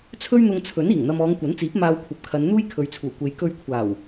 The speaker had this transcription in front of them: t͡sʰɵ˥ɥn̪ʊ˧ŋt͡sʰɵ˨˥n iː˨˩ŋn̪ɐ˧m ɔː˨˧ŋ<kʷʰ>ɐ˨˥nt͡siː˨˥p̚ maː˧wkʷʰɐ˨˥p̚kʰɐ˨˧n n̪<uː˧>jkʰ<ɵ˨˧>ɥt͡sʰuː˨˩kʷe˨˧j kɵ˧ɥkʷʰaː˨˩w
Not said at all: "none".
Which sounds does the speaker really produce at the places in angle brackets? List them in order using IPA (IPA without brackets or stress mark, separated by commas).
kʷ, uː˥, ɵ˨˧